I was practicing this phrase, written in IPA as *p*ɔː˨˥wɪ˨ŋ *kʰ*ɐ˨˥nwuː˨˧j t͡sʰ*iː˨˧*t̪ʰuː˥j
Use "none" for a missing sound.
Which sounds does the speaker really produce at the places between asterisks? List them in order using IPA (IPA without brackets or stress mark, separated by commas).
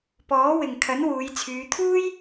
p, kʰ, yː˨˧